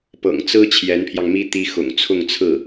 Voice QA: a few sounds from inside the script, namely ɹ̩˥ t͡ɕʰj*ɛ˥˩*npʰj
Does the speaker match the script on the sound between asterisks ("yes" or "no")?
no